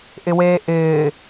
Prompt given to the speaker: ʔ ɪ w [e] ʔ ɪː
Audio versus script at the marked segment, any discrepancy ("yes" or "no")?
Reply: yes